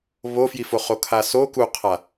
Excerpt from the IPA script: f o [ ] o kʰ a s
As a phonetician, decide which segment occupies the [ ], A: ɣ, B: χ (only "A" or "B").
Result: B